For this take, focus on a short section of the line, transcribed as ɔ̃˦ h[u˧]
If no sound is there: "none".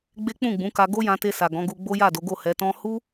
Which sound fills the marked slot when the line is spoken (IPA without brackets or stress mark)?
u˦